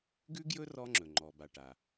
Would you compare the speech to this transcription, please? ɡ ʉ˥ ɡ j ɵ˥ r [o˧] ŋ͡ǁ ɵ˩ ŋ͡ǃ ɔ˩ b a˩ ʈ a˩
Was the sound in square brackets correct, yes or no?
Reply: no